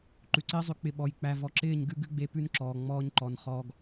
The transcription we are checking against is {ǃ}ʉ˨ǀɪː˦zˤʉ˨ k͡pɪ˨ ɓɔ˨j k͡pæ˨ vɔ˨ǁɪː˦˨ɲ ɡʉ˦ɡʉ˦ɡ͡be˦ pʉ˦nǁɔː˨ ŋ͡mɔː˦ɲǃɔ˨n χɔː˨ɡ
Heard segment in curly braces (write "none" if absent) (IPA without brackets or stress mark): ǃ